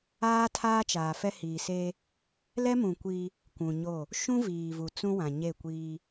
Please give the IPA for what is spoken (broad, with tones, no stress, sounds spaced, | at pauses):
aː˦ tʰ aː˦ t͡ʃ aː˨ f ɛ˦ h iː˨ s eː˦ | l ɛ˦ m ũ˨ kʷ iː˦ | kʷ ũ˨ ɲ o˦˨ | ʃ ũ˦ v iː˨ v u˨ t͡s ũ˦ w ã˨ ɲ e˦˨ kʷ iː˦